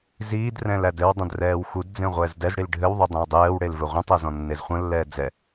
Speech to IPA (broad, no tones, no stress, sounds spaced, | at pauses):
z iː d r ɛ̃ l æ d ɘ w dˤ ə̃ d r ɛː w x u d d͡z ẽ ʁʷ ɛː z d ɛ z ɽ i l ɖʱ ɘ w ðˤ u dˤ ẽ w dˤ ɛː w ɽ e l v ɘ ʁʷ ə̃ tˤ æ z ɔ̃ nː e z χʷ ə̃ lː ɛː d͡z ɛ